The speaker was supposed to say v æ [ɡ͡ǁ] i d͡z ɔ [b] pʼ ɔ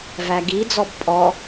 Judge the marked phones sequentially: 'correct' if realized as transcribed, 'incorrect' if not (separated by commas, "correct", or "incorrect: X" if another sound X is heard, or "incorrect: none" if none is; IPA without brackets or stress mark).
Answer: incorrect: ɡ, correct